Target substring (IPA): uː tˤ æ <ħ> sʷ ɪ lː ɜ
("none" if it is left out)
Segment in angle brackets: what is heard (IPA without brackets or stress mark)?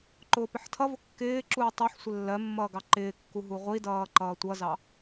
ħ